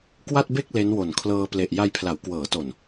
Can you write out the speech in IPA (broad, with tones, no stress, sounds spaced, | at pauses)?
k w a˥˩ t̚ b e˥˩ k̚ l e˦˥ n w o˨˩ n kʰ l ɤː˧ p l e˨˩ ʔ j a˧ j pʰ l a˩˦ w k w ɤː˩˦ t o˨˩ n